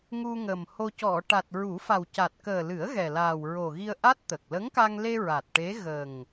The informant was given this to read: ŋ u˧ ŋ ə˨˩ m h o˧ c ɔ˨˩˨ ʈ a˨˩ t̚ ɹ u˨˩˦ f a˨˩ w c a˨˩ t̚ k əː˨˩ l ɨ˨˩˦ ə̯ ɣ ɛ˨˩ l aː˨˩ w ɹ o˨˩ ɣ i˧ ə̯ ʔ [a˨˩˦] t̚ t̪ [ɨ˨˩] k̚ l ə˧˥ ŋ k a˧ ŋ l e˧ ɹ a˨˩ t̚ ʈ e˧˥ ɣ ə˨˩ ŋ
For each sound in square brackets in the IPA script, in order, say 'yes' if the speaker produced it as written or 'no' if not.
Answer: no, no

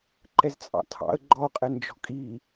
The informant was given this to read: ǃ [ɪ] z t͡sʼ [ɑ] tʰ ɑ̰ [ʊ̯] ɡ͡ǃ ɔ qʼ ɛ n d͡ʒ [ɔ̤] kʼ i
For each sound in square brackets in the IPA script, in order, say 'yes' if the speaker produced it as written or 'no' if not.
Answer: no, no, no, yes

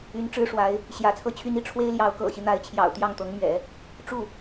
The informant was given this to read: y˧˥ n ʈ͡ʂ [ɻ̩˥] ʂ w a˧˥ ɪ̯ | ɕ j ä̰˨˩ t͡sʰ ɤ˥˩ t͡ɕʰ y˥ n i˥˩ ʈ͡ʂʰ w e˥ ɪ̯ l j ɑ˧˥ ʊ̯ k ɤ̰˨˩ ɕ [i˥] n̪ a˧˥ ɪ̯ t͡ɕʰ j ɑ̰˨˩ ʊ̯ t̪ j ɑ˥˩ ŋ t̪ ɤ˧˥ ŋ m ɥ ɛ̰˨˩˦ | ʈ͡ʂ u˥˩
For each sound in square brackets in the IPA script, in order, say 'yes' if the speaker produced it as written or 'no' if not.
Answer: yes, no

